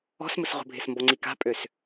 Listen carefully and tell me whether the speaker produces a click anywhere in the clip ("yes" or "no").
yes